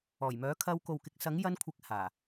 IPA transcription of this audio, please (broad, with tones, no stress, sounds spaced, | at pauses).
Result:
ɔː˨˩ j m œː˨˥ kʰ ɐ˧ w k o˨ w k ɪ˨˥ k̚ s ɐ˨˥ ŋ j ɐ˧ n kʷʰ ɪ˨˥ k̚ h aː˨˩